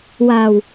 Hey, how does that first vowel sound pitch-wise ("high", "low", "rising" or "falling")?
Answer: low